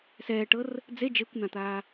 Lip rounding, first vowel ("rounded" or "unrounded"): unrounded